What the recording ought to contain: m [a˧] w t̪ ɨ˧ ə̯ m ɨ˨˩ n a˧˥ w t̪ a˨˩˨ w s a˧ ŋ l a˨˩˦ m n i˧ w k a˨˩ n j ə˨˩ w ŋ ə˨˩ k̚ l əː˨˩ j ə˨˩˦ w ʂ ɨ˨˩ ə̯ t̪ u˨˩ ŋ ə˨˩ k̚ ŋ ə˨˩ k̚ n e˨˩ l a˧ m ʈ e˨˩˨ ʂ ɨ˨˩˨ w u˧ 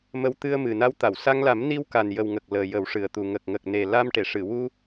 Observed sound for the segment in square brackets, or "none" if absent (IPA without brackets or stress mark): ə˧